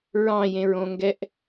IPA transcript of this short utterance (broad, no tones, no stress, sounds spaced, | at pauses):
ɹ ɑ̃ j ẽ ɹ õ ŋ ɡ ɛ ʔ